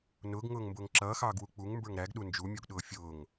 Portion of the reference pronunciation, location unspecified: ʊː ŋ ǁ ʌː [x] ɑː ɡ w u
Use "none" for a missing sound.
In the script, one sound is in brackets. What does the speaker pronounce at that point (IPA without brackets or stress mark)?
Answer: x